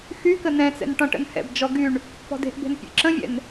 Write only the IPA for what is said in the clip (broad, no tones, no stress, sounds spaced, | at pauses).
x y k ə n ɛ̃ t͡s ɛ̰ n ʈ ɔ̃ ʈ ə̰ n h ɛ̰ b d͡ʒ ɔ ɡ y ɳ | p ɔ̤ d e̤ ʔ b e̤ n pʲ ḛ ǁ ə̃ vʲ ɛ̰ n